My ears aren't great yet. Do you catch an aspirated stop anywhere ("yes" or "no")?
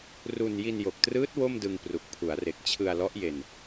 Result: yes